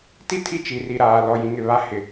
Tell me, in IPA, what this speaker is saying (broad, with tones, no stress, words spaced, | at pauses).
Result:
ti˦ tʰi˦t͡ʃi˨ri˨ɾaː˨ lɔ˨jĩ˨ŋɪ˨ βa˨˦hɪ˨